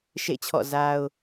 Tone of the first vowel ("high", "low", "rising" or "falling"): falling